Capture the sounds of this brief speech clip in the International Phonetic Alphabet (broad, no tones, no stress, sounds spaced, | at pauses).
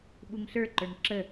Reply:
ɓ u ŋ ɬ ə˞ ǃ ə˞ ŋ ǁ ə